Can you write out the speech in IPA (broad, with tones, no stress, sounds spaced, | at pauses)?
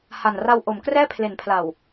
h a˨˩ n r a˧ w ʔ o˩˦ m k r ɛː˥˩ pʰ l e˩˦ n pʰ l a˨˩ w